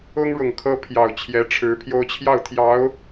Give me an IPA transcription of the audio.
ʊ˥ ŋ ɻ ʊ˨˩ ŋ kʰ ɤ˥ pʰ j ɑ˨˩ ʊ̯ t͡ɕʰ j ɛ˧˥ ʈ͡ʂʰ ɻ̩˧˥ pʰ j o˥ ʊ̯ t͡ɕʰ j ɑ˥˩ ʊ̯ t̪ʰ j ɑ˧˥ ʊ̯

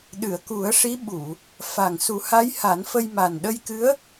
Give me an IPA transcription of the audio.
ɗ ɨ˨˩˨ ə̯ k u˨˩˦ ə̯ ʂ i˧˥ ɓ u˨˩˨ | f a˨˩ ŋ s u˨˩˦ h a˧˥ j h a˨˩˦ n f ə˧ j m a˨˩ n ɗ ə˧ j k ɨ˧˥ ə̯

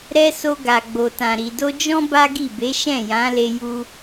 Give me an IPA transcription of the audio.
ɾ ɛ˧ s o˧ ɡ a˨ ɡ͡b o˨ t ã˨ ɾ i˨ d o˧ d͡ʒ ɔ̃˦ b a˦ ɡ i˦˨ b e˨˦ ʃ ɛ̃˦˨ j ã˨˦ l e˧ j u˧

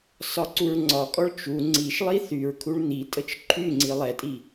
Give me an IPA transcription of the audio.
s ɒ ǀ u ɹ ŋ͡ǀ ɒ kʼ ɔ ɭ t͡ʃ u ŋ͡ǀ i ʃ lˠ i θ y ɹ kʰ u ɭ n̪ i tʼ ə t͡ʃ ǃʰ y ŋ͡ǀ i lˠ ɛ tʼ i

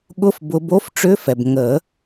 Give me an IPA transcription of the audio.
ɠ ʊ˧˥˧ f b ʊ˨˦ b o˧˥˧ f ʈ͡ʂ ʏ˧˥˧ f ɛ˩ b ŋ ə˨˩˦

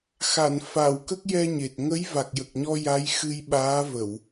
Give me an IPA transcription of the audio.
x a˨˩˨ n f a˨˩˨ w k ə˦˥ k̚ j ɛ˧ ɲ e˨˩ t̚ ŋ ə˧˥ j v a˨˩ k̚ j ə˨˩ k̚ ɲ ɔ˧ j a˧˥ j x ɨ˧ j ɓ aː˧˥ v ə˨˩˨ w

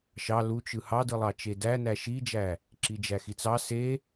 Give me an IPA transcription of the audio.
ʃ ɑ l u t͡ʃ ɯ h ɑ d ɯ lˠ ɑ t͡ʃ e d æ n æ ʃ i d͡ʒ æ | ǁ i d͡ʒ æ x i t͡s ɑ s e

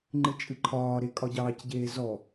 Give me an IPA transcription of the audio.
ŋ͡ǃ ɨ t͡ʃʼ ɨ ǃʰ ɒː ɾ e kʼ ɒ ɟ ɑː c ɟ eː z ɔ

